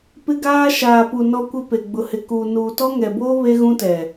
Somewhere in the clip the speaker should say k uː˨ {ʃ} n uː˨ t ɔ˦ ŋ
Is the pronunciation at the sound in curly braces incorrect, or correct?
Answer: incorrect